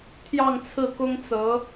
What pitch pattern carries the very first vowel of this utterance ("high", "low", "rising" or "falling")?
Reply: falling